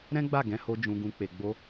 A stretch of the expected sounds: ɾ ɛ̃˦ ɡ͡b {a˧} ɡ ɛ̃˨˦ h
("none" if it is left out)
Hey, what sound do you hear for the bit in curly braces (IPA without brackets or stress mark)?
a˦˨